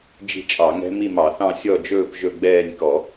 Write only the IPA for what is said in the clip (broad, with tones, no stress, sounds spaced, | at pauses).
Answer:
d͡ʒ i̤˥˧ t͡ʃʼ ɑ˧˩˧ ŋ ɛ̤˦˥ m i˥˧ m ɑ˧˩˧ θ ɑ̃˥˧ sʲ ɔ˥˧ d͡ʒ ɵː˥˧ p ʒ ɵ˥˧ ɡ͡b ɛː˥˧ nʲ k ɔ˧˩˧